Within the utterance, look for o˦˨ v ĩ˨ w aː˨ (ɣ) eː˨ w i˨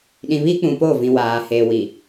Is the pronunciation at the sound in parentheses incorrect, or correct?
incorrect: h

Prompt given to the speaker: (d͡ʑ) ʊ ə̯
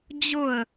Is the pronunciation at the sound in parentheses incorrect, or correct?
correct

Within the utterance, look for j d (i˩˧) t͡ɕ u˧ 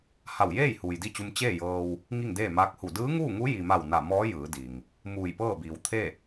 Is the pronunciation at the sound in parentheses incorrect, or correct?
incorrect: i˥˨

